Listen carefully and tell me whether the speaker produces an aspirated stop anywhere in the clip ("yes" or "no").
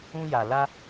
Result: no